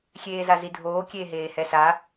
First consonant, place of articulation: velar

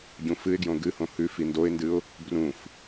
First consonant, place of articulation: palatal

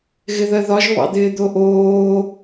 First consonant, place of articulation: velar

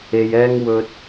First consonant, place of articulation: palatal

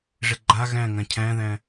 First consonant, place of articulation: retroflex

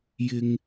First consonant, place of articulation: palatal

